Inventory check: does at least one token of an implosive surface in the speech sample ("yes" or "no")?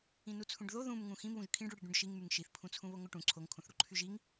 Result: no